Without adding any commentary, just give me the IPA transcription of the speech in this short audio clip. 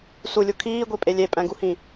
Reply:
s u lʲ u kʰ iː ɡʷ i pʼ e lʲ e pʼ æ̃ ɡ u h ĩ

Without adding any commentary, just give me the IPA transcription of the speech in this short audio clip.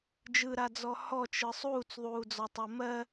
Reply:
d͡ʒ ɯ ɾ a d͡z ɔ h ɔ t͡ʃ ɯ sˤ uː t͡s ðˤ uː d͡z ɔ tˤ ɜ m ɜ

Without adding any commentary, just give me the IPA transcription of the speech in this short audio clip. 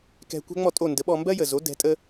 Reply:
k ɛ̤˧ kʷ ɛ̤˥ ŋ͡m ɔ˥˩ tʼ o˥˩ n d ə˩˥ ɓ ɔ˧ m b ɜ˥ j ə˩ z o˩˥ d ɛ̤˩˥ tʼ ə˥

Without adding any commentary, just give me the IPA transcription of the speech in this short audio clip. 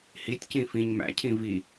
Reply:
h i tʲ c ĩ f ĩ ɲ m æ̰ cʰ ĩ v i

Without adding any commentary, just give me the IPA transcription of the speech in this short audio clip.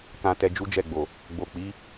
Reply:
k ã˧ t ɛ˧ d͡ʒ u˦ d͡ʒ ɛ˦˨ ɡ͡b o˨ | ɡ͡b o˨ k͡p i˨˦

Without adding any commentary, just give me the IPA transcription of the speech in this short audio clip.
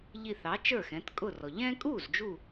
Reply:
ʎ i˧˩ θ ɑ˩˥ t͡ʃ ə˞˥˩ x ɛ̃˩˥ t kʼ ʊ˥˩ r ɔ˩ ʎ ɛ̃˦ kʼ u˥˩ z d͡ʒ u˧˩

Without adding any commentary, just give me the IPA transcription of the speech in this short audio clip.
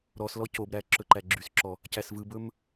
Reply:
ɾ ɔ s l ɔ c o b ɾ æ ǁ ɵ ǃ æ ɡ͡ǁ y s ǁ ɔ | c æ s v ɯ b ɵ m

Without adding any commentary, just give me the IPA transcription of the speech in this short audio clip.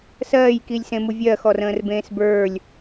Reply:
s ɜː j k i lʲ s ẽ m u vʲ ɜ x ɔ r ə̃ː r b ẽː s b ə˞ lʲ

